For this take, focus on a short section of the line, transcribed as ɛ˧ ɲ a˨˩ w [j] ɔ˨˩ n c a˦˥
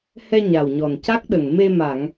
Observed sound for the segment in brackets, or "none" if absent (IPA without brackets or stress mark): ɲ